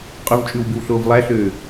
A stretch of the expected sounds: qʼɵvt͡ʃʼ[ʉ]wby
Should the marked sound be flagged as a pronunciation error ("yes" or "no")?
no